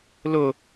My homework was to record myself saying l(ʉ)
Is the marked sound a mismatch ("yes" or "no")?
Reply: yes